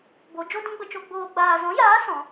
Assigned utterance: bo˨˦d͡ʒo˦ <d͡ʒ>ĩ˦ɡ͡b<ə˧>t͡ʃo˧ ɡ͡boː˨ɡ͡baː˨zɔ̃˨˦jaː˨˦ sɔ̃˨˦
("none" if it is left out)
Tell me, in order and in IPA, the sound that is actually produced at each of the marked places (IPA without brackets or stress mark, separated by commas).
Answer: d, ə˧